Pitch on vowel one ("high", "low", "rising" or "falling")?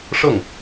falling